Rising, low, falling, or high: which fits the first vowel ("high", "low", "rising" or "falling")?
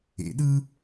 rising